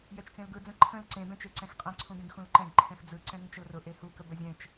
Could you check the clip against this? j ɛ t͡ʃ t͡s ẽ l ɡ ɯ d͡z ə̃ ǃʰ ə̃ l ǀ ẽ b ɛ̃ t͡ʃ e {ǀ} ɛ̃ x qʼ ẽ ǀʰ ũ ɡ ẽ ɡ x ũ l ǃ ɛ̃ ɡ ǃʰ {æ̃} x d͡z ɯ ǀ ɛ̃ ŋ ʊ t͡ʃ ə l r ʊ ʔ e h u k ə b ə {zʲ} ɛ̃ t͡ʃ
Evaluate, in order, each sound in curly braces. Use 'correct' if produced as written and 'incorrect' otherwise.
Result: correct, incorrect: ɛ̃, correct

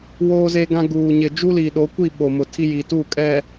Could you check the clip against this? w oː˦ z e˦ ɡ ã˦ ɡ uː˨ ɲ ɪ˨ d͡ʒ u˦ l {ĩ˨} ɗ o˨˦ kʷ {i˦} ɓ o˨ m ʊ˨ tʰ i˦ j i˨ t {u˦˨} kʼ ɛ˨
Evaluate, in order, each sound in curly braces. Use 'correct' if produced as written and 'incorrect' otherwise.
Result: incorrect: i˨, incorrect: i˦˨, correct

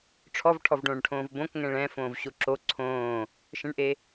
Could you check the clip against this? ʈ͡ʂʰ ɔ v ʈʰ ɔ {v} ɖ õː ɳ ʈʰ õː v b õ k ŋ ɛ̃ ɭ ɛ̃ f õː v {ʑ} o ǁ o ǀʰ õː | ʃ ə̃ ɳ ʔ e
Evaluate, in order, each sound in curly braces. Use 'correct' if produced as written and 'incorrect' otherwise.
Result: correct, incorrect: ɕ

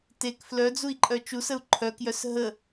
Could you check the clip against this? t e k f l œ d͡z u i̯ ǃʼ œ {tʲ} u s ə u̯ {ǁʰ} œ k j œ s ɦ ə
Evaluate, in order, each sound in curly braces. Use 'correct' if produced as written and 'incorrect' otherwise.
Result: incorrect: t͡ʃ, incorrect: ǃʰ

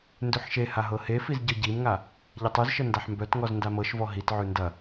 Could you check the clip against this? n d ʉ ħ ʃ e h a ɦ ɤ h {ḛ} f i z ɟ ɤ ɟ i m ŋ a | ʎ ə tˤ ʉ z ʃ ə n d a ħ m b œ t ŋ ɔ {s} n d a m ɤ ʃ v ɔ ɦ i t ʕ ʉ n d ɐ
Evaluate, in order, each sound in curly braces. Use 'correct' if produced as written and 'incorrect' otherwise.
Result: incorrect: e, incorrect: z

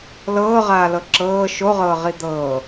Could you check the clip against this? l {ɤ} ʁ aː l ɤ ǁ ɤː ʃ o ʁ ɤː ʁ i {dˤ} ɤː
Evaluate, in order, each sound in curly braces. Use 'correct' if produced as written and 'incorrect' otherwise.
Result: incorrect: ɤː, incorrect: d̪

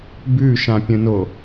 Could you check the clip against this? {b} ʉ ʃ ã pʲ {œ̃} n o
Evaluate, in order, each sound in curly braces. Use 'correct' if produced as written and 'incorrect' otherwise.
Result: correct, incorrect: ə̃

